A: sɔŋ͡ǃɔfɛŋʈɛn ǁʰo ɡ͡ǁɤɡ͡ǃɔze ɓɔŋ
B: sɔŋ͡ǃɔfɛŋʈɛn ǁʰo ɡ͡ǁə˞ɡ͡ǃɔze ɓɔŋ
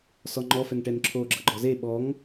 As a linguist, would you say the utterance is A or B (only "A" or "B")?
A